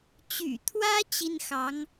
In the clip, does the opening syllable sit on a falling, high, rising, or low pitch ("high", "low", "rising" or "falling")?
low